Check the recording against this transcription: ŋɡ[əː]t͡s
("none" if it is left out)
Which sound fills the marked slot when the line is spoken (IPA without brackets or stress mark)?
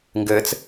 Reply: əː